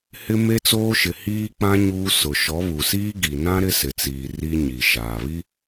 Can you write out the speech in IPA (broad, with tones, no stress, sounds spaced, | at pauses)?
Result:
h ɪ˦ m e˦ t͡s oː˦ ʃ ɪ˨ h iː˦ k͡p ã˦ ɲ uː˦ s ʊ˨ ʃ ɔ˨˦ β u˨ s iː˦ ɡ i˨ n ã˦ ɾ ɪ˦ s ɪ˨ t͡s iː˨ r i˦ ɲ i˨ ʃ aː˨ β i˦